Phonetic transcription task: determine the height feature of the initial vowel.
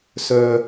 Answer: mid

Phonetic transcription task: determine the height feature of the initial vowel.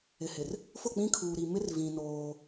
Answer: high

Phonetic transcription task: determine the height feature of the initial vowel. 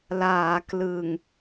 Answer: low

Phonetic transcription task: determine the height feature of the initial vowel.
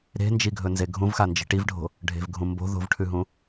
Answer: mid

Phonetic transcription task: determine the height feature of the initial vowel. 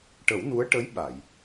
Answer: mid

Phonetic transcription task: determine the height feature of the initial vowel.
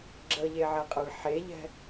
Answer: mid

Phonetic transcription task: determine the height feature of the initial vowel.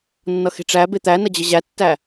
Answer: mid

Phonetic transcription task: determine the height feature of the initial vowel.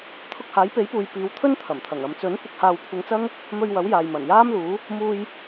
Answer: high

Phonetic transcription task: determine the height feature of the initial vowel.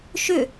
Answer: high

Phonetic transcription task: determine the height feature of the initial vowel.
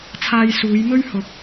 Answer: low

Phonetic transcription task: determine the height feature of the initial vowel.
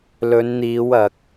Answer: mid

